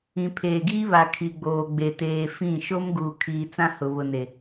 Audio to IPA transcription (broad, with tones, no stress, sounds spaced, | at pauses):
ĩ˨ pʰ eː˨ ɡ iː˦ β a˨ kʰ i˨ ɡ͡b oː˨ ɡ͡b e˨ t eː˨ f ĩ˦˨ ʃ o˦ m ɡ uː˨ kʰ iː˨ t͡s ã˦ h ʊ˨ β ʊ˨ n e˨